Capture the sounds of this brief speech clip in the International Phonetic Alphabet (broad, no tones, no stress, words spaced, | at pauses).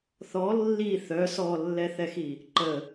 θɔ lːi θœ sɔlːɛθɛxi | ǃə